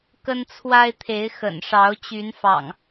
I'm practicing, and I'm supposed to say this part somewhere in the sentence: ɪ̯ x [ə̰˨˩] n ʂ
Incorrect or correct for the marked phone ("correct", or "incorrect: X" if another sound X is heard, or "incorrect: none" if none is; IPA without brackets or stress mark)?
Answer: correct